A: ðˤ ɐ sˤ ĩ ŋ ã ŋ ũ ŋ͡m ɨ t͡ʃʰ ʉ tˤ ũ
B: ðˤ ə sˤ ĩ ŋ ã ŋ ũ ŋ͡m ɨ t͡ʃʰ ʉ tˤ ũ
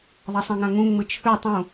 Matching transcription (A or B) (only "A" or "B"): A